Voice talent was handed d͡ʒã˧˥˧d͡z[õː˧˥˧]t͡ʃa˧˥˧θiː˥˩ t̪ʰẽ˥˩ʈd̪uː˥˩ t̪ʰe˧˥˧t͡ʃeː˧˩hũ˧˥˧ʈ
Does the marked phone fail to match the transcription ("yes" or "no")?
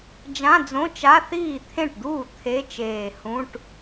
yes